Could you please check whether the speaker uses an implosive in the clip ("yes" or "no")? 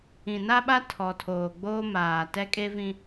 yes